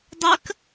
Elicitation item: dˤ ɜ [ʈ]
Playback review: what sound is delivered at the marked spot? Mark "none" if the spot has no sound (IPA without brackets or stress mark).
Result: k